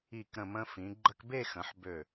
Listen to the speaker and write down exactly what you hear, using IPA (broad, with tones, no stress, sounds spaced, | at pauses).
i˧˩ k ɾ ə̃˧˩ m ə̃˧ f ĩ˩˧ ɡ͡ǃ ə˧ k b e˥˧ x ə̃˩˧ ħ b ø˧˩